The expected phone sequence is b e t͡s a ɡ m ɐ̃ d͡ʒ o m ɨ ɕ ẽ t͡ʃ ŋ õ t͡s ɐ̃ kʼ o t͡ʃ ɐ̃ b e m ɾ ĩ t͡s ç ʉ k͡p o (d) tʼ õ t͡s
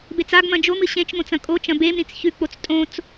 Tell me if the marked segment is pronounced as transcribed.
no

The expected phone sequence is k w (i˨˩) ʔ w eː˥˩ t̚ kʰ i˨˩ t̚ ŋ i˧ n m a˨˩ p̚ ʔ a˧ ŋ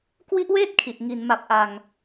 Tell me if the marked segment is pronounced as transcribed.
no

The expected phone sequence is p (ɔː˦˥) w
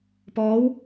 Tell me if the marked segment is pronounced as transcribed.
yes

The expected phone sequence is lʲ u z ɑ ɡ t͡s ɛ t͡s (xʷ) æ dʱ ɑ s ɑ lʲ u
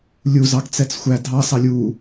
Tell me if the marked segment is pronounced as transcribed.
yes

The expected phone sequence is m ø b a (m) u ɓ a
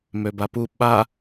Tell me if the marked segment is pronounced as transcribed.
no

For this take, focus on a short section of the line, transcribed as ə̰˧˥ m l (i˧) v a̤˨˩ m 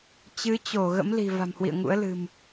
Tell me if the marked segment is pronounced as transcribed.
no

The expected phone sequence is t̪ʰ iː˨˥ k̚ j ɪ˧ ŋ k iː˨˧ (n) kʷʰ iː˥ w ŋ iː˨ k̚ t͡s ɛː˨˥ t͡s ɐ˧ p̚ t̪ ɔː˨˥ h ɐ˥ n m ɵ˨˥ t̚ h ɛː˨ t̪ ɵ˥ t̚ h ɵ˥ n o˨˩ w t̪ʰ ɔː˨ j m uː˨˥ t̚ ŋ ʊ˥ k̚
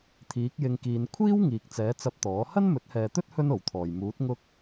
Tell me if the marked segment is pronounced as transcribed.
yes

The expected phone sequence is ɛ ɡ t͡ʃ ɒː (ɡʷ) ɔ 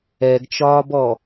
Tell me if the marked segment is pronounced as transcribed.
no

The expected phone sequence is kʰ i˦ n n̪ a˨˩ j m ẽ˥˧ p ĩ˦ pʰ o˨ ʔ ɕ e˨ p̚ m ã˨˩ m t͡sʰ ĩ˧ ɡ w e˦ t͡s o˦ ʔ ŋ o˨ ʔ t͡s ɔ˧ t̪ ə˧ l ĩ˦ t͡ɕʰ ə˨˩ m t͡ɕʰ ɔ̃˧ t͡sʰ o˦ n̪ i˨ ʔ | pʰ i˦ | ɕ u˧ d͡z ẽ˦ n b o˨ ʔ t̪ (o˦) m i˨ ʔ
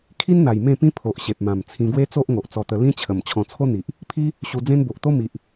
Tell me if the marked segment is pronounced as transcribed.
yes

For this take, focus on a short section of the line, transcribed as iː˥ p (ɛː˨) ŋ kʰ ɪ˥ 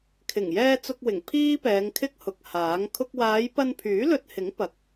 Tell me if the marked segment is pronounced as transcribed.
no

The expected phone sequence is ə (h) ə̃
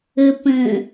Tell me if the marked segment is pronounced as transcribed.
no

